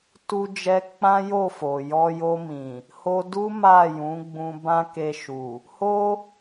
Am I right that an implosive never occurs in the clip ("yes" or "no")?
yes